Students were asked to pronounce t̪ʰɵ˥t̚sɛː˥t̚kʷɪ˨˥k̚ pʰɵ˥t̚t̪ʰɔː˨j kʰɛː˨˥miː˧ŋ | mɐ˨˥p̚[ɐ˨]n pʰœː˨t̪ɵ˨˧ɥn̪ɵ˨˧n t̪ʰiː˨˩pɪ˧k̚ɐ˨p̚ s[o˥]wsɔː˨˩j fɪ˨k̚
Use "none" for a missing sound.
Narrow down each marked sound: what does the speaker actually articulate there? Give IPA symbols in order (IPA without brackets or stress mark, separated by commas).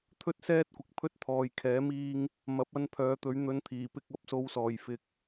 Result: ɐ˧, o˧